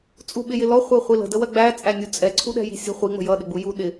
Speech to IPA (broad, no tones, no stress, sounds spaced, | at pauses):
t͡sʼ u ɓ ɪ j ɪ l ɔ χʷ ɜ χʷ i l ə̤ d ə w ɜ ɡ͡b æ t͡sʼ æ nʲ u t͡sʼ ɛ ǀʰ u ɗ ɛ̤ j i̤ sʲ ə̤ χʷ i ŋ͡m ə̤ j ʌ ɗ ɪ ɡ͡b u j u ɗ ɪ